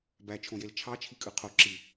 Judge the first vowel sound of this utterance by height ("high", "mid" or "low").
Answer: low